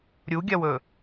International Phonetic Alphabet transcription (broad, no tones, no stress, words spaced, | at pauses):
ɾʲuɡʲɐwɵ